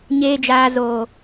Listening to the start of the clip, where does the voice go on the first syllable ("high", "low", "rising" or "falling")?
low